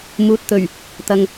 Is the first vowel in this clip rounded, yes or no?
yes